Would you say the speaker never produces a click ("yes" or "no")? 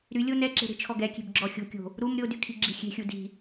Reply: no